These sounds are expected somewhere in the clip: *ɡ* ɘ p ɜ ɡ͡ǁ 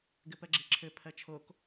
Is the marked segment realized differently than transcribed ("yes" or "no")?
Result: no